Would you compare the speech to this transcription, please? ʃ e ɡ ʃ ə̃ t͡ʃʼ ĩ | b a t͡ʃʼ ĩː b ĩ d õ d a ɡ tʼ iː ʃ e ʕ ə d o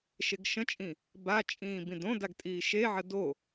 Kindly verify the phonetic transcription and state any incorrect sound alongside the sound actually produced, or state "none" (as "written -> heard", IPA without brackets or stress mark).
none